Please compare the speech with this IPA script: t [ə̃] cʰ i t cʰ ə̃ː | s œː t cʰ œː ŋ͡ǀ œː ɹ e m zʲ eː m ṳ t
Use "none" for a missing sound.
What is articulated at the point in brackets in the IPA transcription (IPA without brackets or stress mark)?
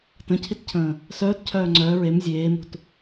ə̃